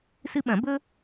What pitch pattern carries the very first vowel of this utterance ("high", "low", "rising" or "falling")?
high